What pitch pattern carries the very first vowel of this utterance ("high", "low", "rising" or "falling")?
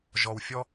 low